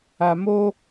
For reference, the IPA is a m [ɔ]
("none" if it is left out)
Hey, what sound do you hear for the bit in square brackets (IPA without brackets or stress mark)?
o